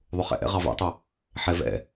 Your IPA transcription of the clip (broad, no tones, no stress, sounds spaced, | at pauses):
ðˤ ʊ χ ɛ̰ ʔ ɛ̰ ʁ ɑ v ɛ̰ tˤ ʊ | ħ ɛ v ɛ̰